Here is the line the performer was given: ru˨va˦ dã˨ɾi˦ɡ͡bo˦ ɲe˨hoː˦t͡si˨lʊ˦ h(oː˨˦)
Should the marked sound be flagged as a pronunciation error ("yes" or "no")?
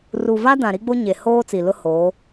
no